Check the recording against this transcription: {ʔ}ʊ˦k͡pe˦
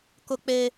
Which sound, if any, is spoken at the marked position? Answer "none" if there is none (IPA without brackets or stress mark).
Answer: k